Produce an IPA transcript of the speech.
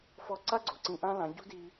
f ɔ˧ ǀ a˦ ɡ͡ǀ o˨ ǀ ĩ˧ ʔ ã˦ l ã˨˦ ɟ ṳ˦ d i˧

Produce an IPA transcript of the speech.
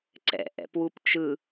ǀ ɛ̰ ʔ ɛ̰ p w u p t͡ʃ ɯ

